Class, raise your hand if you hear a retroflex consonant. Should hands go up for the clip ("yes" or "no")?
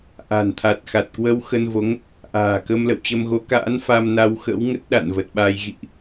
no